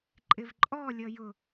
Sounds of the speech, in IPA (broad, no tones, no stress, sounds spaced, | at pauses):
ǃʼ ɪ v ǃʼ ɔ lʲ ʌ j ʊ